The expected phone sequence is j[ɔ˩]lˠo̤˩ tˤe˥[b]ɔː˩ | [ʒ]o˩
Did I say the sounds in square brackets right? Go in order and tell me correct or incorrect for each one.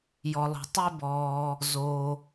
correct, correct, incorrect

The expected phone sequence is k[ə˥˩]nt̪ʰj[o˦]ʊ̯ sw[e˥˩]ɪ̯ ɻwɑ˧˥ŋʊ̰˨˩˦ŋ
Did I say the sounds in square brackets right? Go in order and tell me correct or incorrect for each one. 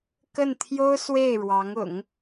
correct, incorrect, correct

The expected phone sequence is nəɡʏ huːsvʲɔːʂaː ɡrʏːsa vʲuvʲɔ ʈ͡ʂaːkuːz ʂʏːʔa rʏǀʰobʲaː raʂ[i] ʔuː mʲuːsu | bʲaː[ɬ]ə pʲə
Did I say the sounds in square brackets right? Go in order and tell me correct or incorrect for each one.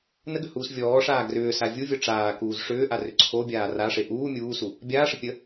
incorrect, incorrect

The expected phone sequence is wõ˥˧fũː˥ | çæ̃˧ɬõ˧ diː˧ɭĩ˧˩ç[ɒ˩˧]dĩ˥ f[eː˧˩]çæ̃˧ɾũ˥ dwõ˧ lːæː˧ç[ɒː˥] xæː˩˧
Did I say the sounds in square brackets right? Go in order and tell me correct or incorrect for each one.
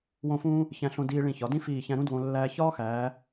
correct, incorrect, correct

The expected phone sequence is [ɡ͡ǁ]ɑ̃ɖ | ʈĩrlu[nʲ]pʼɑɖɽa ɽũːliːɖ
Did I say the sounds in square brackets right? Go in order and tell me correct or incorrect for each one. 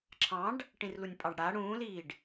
incorrect, correct

